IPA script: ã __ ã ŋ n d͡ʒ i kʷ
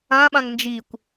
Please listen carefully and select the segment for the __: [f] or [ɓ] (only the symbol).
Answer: ɓ